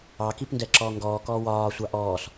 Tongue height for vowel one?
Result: low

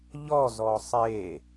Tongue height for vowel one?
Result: mid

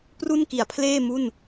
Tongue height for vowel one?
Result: high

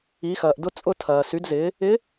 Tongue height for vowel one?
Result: high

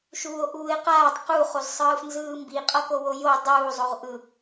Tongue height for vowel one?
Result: high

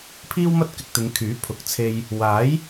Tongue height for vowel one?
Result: high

